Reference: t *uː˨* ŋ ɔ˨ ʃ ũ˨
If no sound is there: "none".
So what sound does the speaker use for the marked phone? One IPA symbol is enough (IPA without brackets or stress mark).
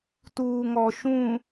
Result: uː˨